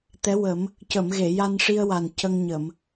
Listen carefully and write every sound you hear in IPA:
t̪ ɛ˧˥ w ə˨˩˦ m | c ə˨˩˨ m ɣ e˨˩˨ j a˧ n ʂ i˧ ə̯ w a˨˩ n c ə˧ ŋ ɲ ə˨˩˨ m

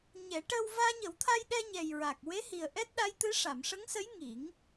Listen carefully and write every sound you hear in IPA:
ɲ ɛ˨˩˦ ʈ əː˧ w v aː˧ ɲ ə˨˩˦ w t̪ʰ a˧ j ɗ ɛ˧ ɲ ɛ˨˩ j ɹ a˨˩ k̚ w e˧˥ h i˨˩ ə̯ ʔ ɛ˦˥ t̚ ɗ a˧˥ j t̪ ɨ˧˥ ʂ a˨˩˨ m ʂ ə˧˥ ŋ s ə˧˥ j ŋ i˨˩˦ ŋ

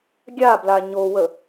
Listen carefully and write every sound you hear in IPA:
ɡʲ a b l a ɲ o w ə

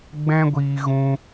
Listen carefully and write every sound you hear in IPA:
ɡ͡b ɛ̃˦ ɡʷ iː˧ ɣ ũ˦

